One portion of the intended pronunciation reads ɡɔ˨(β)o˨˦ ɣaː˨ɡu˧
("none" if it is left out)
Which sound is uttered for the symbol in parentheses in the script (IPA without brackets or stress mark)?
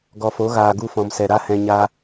f